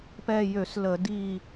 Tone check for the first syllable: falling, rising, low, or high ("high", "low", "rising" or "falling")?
falling